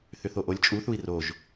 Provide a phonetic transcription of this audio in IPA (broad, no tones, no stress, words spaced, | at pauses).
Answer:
θʏθoʔolʲ t͡ʃʼuθui̯ roʒ